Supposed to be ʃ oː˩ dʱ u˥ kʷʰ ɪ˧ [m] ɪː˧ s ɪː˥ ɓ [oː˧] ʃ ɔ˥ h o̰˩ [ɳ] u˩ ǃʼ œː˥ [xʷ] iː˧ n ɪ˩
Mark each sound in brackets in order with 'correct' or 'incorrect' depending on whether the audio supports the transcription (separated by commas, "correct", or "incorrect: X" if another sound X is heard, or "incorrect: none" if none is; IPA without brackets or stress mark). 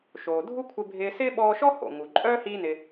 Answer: incorrect: bʱ, incorrect: ɔː˧, incorrect: ŋ, incorrect: h